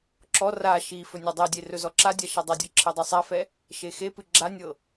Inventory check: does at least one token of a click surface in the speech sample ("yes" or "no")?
yes